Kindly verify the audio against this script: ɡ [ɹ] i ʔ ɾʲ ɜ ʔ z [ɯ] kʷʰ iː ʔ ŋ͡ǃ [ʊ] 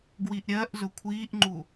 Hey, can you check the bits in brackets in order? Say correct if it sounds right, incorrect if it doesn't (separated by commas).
incorrect, incorrect, incorrect